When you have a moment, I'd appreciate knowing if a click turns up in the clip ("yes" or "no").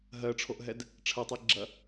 yes